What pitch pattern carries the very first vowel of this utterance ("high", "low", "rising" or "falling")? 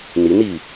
rising